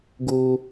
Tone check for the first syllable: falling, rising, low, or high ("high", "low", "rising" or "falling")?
low